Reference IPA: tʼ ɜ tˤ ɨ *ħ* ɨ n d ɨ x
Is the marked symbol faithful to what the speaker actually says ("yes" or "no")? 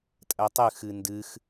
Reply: no